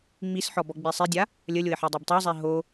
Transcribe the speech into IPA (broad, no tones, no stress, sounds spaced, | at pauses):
ŋ͡m i s ħ ɔ b ɔ ɡ͡b i sˤ i dʲ a | lʲ ə lʲ o ɪ̯ ħ i dˤ ɛ b tˤ æ zˤ ɛ ɦ o